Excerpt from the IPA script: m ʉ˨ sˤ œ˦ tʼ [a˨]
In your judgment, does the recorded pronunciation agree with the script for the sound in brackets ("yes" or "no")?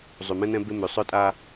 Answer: no